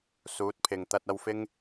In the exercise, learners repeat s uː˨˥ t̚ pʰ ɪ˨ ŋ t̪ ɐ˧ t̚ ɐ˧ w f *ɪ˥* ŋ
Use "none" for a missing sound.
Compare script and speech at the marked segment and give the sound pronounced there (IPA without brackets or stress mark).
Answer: ɪ˥